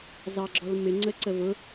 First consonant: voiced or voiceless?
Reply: voiced